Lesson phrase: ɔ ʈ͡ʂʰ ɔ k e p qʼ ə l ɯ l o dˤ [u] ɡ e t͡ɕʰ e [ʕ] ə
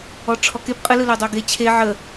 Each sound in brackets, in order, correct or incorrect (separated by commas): incorrect, correct